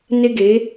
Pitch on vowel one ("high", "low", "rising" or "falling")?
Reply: high